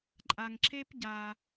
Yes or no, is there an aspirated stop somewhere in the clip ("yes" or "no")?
no